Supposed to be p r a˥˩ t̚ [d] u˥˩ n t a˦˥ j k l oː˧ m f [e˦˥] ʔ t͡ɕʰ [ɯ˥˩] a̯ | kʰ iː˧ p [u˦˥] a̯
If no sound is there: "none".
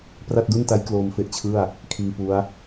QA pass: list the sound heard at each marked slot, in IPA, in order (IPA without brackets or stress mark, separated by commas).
d, e˦˥, ɯ˥˩, u˦˥